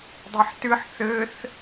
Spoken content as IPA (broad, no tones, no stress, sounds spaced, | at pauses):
dˤ i ħ t ɨ ħ θ ɘ θ